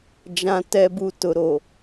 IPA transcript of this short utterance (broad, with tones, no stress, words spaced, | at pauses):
d͡ʒã˨ tɛ˨bu˨ tʊ˨ɾo˨